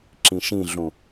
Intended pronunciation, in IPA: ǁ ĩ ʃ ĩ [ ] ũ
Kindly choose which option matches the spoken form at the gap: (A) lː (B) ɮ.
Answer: B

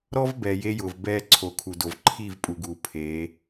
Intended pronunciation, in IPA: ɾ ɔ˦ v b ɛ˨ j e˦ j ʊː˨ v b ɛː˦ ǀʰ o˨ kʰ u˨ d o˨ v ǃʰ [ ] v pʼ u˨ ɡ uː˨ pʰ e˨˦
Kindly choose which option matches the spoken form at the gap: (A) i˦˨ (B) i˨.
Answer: A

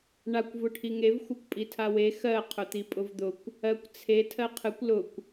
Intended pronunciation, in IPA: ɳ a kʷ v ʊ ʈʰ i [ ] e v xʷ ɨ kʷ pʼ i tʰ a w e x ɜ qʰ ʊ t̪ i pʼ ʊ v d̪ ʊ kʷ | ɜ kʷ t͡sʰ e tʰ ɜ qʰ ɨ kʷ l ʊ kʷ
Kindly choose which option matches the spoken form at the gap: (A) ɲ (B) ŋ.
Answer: B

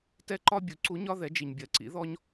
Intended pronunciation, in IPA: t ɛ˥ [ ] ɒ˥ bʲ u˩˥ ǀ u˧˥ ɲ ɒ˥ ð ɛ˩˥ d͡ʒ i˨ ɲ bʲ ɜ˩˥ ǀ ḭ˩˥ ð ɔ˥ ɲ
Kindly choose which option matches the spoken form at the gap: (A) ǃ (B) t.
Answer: A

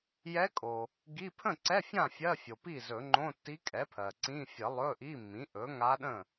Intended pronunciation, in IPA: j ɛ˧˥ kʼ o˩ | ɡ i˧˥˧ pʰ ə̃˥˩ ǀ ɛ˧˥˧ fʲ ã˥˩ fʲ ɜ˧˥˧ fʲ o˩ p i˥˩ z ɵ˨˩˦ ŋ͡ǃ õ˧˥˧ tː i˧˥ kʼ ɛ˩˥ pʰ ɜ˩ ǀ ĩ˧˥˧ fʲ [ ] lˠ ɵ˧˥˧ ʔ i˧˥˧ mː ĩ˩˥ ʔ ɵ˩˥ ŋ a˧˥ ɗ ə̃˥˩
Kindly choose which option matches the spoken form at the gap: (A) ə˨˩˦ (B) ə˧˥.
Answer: A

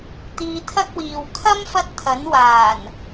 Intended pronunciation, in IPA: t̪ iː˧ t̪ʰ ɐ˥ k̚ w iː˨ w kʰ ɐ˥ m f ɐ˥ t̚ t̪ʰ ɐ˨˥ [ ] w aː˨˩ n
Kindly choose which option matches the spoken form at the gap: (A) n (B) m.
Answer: A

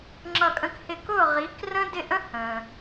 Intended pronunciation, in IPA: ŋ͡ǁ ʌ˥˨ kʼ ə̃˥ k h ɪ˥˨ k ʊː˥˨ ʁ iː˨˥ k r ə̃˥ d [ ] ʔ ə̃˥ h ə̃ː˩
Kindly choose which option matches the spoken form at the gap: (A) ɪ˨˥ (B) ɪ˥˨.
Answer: B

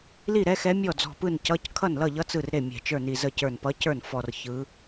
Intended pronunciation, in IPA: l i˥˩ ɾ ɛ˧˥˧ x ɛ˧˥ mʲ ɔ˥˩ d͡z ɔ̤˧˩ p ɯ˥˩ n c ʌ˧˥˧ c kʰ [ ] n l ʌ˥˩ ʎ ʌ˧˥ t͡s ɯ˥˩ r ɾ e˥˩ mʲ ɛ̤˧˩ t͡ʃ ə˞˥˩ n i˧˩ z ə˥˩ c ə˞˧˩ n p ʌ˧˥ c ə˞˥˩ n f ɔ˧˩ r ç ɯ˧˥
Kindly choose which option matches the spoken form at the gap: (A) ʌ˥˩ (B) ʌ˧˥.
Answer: A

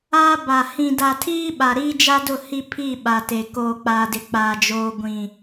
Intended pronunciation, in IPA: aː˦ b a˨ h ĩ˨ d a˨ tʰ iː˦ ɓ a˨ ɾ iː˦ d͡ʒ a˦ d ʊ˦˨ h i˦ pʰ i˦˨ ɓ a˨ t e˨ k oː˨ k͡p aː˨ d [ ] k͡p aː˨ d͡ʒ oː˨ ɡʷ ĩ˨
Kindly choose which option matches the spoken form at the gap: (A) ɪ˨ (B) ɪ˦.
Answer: A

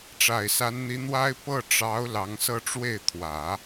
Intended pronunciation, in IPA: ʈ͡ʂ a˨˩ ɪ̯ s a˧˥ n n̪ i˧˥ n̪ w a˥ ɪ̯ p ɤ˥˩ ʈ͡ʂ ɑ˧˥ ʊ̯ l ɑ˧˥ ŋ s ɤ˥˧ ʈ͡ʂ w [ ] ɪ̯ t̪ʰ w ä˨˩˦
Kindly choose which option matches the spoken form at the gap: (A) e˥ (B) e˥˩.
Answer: B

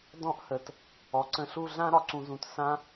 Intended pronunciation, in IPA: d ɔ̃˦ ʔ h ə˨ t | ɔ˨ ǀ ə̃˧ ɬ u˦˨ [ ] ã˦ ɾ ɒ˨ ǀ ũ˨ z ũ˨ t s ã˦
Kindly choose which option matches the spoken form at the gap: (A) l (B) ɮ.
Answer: B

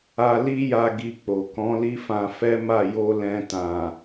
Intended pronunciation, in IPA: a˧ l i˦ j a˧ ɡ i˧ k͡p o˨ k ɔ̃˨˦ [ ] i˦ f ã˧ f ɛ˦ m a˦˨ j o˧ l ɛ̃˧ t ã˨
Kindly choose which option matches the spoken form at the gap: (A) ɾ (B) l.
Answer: B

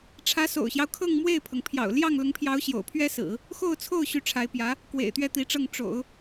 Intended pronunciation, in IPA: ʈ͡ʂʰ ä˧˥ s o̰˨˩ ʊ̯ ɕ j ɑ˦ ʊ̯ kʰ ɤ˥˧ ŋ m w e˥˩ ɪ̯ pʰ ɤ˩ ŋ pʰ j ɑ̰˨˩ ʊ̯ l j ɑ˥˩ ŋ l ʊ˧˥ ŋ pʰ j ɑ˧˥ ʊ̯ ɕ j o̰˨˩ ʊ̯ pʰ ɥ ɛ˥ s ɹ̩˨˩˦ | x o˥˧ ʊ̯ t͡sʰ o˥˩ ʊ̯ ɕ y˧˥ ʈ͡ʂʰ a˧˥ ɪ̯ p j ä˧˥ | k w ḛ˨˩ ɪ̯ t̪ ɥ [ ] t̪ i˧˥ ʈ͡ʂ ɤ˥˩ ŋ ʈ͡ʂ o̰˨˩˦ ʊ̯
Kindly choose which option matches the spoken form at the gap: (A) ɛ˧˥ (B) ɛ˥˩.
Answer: B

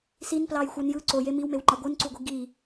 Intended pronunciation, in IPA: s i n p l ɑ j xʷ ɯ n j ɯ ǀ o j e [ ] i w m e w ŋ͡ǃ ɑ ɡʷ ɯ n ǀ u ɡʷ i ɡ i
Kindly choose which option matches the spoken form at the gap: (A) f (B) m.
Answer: B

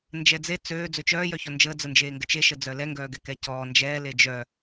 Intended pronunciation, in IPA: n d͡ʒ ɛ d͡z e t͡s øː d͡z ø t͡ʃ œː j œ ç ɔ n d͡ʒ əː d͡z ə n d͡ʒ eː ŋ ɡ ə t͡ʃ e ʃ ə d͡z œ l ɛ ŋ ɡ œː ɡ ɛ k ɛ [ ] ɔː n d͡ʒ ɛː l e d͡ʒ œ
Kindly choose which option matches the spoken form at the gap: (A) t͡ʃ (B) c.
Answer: B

